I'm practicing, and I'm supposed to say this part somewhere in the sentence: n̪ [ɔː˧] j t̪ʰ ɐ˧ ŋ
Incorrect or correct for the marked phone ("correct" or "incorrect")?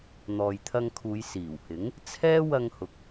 incorrect